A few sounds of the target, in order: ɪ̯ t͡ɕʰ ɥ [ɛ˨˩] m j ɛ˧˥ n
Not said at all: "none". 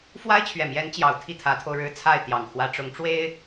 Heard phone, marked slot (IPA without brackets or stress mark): ɛ˨˩